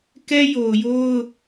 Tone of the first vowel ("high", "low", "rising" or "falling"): high